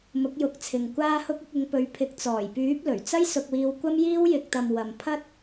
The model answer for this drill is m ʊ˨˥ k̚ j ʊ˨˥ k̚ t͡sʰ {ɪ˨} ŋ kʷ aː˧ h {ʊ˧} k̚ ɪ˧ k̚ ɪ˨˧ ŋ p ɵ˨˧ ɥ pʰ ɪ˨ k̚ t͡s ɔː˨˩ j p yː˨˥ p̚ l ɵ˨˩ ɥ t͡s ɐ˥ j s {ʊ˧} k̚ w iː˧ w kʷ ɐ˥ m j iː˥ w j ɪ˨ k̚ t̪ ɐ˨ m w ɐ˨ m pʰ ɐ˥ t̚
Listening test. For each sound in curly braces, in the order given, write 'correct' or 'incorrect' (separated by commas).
correct, correct, correct